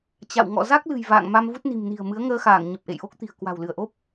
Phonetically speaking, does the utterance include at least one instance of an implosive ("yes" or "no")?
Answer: no